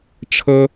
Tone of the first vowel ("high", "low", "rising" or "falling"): high